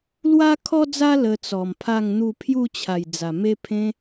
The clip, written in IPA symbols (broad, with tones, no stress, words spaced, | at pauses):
lwa˦kʰɔ˦d͡za˦ lə˧t͡sɔ˨˩mpʰa˥˧ŋn̪u˥˧ pʰju˥˧t͡ɕʰa˨˩j d͡za˨˩ me˦pʰẽ˦